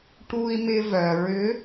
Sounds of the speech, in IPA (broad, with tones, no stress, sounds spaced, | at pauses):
ʈ u˧ i̯ m ɪ˧ v œ˩ ɹ ʏ˧˥